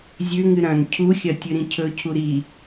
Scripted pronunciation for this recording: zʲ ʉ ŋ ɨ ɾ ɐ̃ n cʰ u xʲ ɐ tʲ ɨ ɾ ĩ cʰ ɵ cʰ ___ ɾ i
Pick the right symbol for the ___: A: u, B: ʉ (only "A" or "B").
A